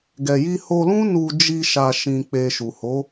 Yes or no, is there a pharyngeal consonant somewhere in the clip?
no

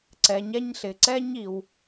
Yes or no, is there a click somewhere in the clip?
yes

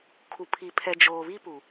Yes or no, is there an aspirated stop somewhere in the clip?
yes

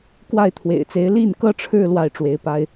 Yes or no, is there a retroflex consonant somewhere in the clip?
yes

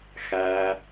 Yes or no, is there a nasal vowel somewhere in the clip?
no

